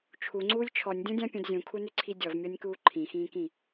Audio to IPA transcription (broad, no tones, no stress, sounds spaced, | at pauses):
t͡ʃʰ u ŋ͡ǀ uː lʲ t͡ʃʰ ɔ nʲ dʲ ɔ̃ dʲ ã pʲ ũ d zʲ ũ kʰ u n ʏ ǀʰ i dʲ ɔ v mʲ ɔ nʲ k uː ǃʰ ĩ x ĩː k ĩ